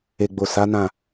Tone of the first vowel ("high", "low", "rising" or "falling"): low